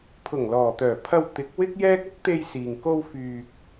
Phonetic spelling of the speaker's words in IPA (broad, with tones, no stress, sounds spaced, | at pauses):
pʰ ʊ˨˩ ŋ l ɔː˨˩ t̪ œː˨˩ pʰ ɐ˧ w t̪ ɪ˨˥ k̚ w ɪ˥ k̚ j ɛː˥ k̚ ɐ˥ k̚ t̪ e˧ j s iː˨ ŋ k o˧ w f yː˨ k̚